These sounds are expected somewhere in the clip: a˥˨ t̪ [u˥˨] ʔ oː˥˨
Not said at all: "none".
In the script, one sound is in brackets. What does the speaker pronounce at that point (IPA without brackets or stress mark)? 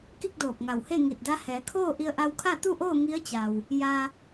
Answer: u˥˨